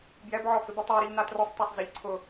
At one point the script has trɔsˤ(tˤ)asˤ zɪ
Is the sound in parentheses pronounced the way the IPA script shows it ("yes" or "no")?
no